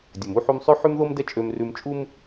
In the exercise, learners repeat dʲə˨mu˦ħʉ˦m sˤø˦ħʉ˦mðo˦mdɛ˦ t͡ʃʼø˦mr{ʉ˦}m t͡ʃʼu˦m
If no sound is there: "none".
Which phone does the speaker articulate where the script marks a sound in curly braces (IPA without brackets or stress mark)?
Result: ʉ˦